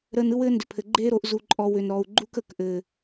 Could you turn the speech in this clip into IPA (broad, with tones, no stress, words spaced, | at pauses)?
ɾəː˧nɯ˦wɘː˦ ndʏ˨pʰɘ˨ ɡ͡ǃeː˦ɾo˧ʔ zu˨ǃʼɔ˨ wʏ˨nɾɔ˨u̯ɡ͡ǃu˦k ə˨k ʔɘː˨